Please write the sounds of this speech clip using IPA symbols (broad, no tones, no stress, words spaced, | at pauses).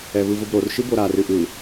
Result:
ɛvɯvʊbɾor ʃɨboɾa rɨʔɯ